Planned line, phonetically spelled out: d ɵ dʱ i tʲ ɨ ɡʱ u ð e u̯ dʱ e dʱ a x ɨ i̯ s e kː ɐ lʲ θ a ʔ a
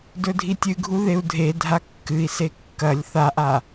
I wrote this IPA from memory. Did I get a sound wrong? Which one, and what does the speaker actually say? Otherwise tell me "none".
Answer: x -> kː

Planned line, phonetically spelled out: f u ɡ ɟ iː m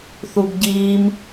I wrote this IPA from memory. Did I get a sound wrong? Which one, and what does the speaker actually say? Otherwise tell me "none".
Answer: f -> θ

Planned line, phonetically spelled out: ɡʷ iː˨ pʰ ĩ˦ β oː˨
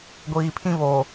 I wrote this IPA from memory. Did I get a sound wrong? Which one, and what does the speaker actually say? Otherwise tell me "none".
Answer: none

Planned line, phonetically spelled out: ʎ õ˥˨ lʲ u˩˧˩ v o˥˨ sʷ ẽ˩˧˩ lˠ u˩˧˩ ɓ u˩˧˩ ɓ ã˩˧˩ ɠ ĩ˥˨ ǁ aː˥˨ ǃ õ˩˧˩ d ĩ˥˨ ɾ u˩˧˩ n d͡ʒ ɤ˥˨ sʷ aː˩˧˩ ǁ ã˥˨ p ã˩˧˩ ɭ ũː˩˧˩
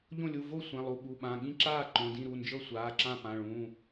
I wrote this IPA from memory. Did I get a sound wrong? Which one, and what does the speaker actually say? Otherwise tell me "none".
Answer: none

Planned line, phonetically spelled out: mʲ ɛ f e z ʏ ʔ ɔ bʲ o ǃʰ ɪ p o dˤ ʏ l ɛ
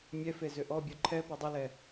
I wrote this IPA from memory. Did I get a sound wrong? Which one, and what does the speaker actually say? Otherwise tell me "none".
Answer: ɪ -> ɛ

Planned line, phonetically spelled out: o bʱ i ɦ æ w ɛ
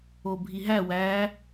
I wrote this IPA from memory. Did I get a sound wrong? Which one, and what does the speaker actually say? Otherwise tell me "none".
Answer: ɛ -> æ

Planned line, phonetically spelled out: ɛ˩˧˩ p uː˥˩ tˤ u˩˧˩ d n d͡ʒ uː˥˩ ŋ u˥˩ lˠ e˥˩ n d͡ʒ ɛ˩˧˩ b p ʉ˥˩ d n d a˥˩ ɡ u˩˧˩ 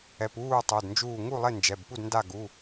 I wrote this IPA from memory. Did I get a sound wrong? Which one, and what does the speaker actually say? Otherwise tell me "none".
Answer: ʉ˥˩ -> u˥˩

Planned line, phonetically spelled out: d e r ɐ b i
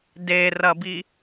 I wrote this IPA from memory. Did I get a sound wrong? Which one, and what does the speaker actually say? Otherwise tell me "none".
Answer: none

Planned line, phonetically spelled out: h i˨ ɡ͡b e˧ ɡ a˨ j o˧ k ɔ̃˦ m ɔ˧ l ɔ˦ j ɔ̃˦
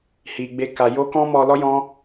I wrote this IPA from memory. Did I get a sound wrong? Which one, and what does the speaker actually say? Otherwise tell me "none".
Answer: ɡ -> k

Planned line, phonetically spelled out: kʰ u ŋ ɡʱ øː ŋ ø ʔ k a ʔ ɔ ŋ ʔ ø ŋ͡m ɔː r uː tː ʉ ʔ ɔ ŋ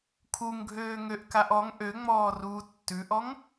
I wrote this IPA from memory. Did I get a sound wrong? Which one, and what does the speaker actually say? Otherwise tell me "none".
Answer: none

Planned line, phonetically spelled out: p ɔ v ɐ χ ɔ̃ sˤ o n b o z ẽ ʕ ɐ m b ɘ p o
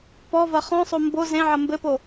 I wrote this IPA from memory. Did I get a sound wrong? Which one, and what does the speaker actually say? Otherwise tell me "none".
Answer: n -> m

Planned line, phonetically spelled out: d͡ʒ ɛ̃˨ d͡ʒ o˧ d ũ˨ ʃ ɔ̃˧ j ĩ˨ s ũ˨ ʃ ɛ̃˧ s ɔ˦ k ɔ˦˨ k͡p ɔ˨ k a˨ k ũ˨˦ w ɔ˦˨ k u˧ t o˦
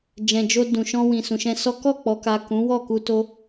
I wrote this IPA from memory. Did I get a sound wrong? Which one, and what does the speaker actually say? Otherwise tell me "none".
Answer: j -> w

